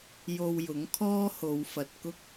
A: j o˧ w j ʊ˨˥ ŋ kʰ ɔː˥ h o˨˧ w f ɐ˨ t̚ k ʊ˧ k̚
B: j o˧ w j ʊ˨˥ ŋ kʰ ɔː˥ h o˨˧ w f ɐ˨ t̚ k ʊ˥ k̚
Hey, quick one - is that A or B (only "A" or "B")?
B